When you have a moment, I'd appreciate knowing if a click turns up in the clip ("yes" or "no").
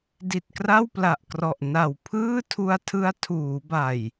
no